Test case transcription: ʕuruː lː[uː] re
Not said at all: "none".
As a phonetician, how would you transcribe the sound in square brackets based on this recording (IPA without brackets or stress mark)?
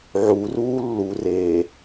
u